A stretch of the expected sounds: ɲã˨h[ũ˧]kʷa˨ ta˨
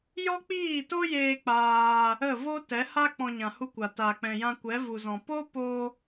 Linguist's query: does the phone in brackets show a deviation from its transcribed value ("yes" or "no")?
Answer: yes